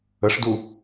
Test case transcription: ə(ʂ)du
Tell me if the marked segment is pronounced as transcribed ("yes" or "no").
yes